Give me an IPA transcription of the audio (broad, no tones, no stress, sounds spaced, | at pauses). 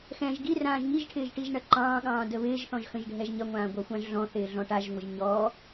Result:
x ɛ̃ ʒ ɡ i r ãː ʒ ŋ i ʒ ʈʰ ɪː ʒ ʈ i ʒ ɳ ɐ ǃ ɑ̃ː ɠ ɑ̃ː d ə β ɪː ʒ θ ɔ̃ ʒ x ə̃ ʒ ɖʱ ɛ ʒ ɲ ɐ ŋʷ ãː ɡʷ ɑ xʷ ɑ̃ ʒ ɮ ɔ̃ θ ɪː ɮ ɔ̃ ʈ a ʒ ŋʷ ə ʒ ɲ ɔ